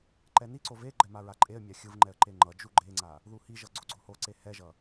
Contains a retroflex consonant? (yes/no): no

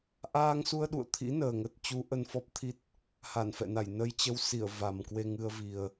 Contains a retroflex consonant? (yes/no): no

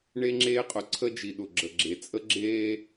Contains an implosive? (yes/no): yes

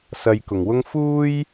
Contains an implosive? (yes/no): no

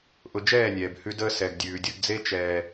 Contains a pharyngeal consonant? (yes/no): no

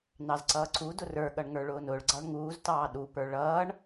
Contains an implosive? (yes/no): yes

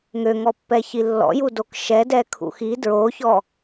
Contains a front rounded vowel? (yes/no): yes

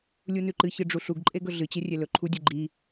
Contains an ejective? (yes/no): yes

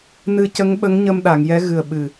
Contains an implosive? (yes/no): yes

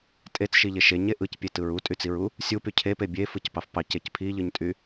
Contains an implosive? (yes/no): no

